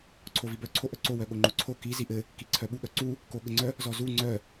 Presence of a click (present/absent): present